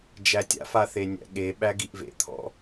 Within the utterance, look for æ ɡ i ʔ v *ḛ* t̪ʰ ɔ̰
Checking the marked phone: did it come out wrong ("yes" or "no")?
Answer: no